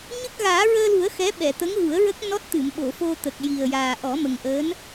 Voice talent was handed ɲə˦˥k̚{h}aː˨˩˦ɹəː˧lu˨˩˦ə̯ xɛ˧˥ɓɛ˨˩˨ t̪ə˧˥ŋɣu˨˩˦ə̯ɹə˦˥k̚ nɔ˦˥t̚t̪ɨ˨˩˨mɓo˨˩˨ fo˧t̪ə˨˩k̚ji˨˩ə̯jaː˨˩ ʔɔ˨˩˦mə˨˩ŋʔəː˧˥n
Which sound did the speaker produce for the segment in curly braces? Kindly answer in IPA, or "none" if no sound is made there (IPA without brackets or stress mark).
ɣ